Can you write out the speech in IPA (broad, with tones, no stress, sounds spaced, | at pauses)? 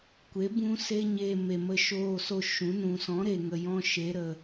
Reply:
kʷ e˨˦ b ũ˦ s e˦ ɲ eː˧ m e˨ m ə˧ ʃ oː˧ s o˧ ʃ ũ˨˦ n ũ˨ s ɔ̃˨˦ ɾ eː˨ ŋ ə˨ j ɔ̃˧ ʃ e˨˦ ɾ ə˨